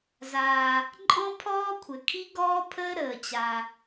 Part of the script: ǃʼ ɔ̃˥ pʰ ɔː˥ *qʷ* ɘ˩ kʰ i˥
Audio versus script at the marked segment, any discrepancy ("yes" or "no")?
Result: yes